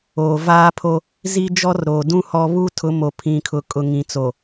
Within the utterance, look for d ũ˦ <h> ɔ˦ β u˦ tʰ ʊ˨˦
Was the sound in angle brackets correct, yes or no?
yes